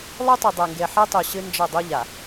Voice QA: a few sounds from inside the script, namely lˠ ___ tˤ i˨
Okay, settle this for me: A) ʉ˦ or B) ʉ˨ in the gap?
A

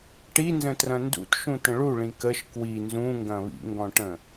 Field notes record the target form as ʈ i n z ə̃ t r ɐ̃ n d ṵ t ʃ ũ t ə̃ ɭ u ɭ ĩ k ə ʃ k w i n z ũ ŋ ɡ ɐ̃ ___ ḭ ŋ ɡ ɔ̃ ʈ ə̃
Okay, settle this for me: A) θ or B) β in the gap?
B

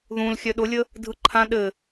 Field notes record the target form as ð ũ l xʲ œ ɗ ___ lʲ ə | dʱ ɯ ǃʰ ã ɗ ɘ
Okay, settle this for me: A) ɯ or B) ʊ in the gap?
B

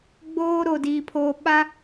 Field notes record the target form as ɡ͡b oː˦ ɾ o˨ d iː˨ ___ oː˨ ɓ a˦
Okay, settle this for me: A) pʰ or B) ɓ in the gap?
A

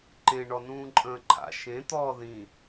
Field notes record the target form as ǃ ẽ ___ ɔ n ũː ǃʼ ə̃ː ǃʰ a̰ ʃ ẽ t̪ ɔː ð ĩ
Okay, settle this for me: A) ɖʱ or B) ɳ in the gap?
B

